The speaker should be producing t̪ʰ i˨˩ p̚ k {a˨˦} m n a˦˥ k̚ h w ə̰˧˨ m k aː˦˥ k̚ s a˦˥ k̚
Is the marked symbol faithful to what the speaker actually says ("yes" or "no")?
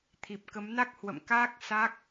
no